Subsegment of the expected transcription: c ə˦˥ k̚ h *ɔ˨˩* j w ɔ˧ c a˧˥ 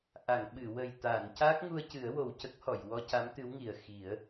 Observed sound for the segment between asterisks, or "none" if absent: ɔ˨˩˨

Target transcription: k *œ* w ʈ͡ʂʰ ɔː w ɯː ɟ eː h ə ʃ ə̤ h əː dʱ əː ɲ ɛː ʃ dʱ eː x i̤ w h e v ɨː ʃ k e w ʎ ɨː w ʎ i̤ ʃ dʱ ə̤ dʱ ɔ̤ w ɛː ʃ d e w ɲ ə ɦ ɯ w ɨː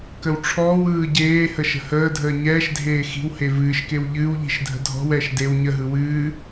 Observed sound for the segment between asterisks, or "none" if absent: ə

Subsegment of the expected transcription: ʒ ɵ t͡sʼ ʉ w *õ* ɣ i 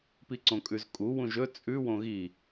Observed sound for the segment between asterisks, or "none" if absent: õ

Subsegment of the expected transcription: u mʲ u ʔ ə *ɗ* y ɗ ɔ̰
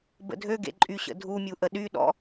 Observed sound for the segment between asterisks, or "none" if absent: ɗ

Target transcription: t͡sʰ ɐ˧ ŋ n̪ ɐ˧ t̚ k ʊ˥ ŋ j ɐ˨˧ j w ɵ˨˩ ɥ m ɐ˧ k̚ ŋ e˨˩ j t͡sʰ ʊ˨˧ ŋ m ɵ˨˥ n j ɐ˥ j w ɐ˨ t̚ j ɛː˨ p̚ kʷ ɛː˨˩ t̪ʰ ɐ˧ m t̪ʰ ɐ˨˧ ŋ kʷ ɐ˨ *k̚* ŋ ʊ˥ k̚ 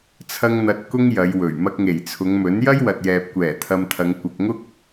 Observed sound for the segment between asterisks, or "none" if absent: k̚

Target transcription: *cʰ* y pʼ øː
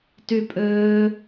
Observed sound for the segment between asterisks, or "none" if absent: t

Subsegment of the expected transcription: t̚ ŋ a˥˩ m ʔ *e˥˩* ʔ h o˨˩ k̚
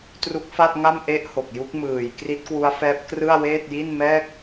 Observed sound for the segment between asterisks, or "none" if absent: e˦˥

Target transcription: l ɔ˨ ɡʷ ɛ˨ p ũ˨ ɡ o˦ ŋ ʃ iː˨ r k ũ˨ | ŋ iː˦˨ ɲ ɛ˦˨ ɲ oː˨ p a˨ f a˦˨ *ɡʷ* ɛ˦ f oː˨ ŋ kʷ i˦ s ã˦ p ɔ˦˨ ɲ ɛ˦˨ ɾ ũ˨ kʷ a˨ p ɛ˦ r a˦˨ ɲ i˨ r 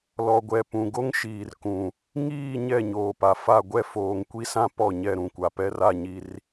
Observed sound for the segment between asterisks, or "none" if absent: ɡʷ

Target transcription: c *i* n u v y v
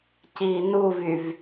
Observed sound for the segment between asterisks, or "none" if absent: iː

